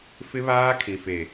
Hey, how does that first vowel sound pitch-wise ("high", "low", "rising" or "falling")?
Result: high